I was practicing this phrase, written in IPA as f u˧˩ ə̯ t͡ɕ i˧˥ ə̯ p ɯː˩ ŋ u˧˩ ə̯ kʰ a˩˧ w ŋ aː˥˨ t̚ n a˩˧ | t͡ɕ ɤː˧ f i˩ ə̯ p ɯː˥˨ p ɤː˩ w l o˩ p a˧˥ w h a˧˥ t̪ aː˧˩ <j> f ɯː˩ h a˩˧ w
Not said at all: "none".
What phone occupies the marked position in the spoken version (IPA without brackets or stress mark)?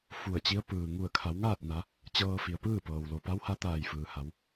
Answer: j